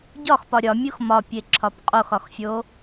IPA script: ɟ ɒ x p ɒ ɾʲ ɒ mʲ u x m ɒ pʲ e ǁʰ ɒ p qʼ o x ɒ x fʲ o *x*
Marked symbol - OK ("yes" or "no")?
no